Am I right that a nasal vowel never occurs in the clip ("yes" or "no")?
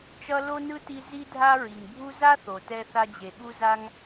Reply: yes